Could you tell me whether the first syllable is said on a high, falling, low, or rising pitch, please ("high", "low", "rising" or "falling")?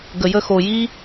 low